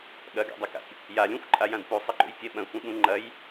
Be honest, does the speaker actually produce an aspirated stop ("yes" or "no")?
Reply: no